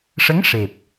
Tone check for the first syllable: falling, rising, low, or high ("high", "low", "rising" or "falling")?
rising